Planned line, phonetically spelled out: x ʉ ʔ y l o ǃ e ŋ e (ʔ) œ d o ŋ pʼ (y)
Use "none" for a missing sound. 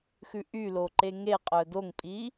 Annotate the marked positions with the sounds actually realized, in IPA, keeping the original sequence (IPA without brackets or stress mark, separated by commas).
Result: qʼ, i